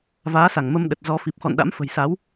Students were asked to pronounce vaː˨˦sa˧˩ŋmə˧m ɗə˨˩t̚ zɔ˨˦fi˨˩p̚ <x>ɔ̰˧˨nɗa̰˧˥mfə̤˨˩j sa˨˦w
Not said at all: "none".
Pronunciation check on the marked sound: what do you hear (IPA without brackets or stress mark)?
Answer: x